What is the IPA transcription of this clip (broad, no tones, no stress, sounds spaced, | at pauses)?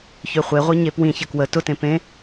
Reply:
ç ø χʷ e ʁʷ i ɲ e p w ĩ ç ə k w ə t ʊ t ẽ p ẽ